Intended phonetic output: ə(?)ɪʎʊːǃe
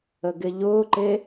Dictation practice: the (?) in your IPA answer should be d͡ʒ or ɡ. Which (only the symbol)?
ɡ